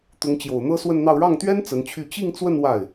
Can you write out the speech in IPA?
t̪ʊ˧˥ŋt͡ɕjo˨˩ʊ̯n̪ɤ˥ swə˥˧nn̪ɑ˥˧ʊ̯ ɻɑ˥˩ŋt̪ɥɛ˥n t͡sə˧˥nt͡ɕʰy˥˧ t͡ɕi˥˧ŋt͡swə˥˧n wa˥˩ɪ̯

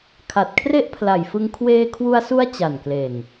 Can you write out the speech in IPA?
kʰa˨˩t̚kʰre˥˩ʔpʰla˨˩jfɯ˧ŋ kʰweː˧kʰwu˧a̯su˦˥a̯ t͡ɕa˨˩nkle˨˩n

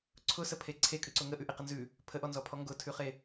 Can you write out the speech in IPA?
ǀʰʊsəpʰe ǀʰekʼʉǀʊ ŋəʔʉʔeqə nzʉ | pʰəʔɔnzɔpʰɔ ŋɡʊtʰʉχe

